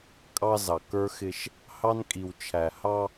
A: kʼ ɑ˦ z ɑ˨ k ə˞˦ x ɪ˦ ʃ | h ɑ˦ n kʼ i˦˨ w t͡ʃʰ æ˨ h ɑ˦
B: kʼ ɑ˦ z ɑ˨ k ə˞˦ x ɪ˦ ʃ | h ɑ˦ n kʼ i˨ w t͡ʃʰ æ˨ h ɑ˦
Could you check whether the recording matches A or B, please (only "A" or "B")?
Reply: B